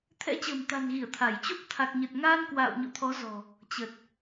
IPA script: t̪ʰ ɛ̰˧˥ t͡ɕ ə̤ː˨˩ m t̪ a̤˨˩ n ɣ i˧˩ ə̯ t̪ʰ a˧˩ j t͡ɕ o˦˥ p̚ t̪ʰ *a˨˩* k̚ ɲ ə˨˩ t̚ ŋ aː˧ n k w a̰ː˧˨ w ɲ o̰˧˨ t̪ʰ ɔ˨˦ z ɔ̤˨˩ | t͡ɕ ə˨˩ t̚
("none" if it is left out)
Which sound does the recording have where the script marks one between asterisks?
a˨˩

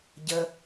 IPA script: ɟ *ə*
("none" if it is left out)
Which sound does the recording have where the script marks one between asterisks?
ə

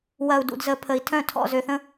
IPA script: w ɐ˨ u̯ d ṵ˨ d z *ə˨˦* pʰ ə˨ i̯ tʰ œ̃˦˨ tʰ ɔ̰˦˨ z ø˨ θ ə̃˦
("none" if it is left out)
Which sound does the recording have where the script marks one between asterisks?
ə˨˦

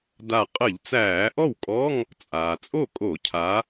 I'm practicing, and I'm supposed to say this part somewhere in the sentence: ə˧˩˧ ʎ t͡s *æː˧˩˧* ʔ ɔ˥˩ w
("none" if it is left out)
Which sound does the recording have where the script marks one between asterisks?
æː˧˩˧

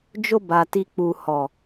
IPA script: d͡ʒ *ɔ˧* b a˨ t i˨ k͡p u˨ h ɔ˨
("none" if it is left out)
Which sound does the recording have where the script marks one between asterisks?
o˧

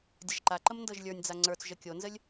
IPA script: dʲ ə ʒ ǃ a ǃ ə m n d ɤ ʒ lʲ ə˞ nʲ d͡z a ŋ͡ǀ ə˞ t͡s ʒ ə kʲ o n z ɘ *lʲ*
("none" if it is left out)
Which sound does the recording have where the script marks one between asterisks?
lʲ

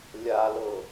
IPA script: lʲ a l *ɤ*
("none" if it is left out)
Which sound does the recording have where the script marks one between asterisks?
ɤ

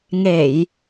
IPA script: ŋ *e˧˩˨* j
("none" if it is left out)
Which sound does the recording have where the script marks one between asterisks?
e˧˩˨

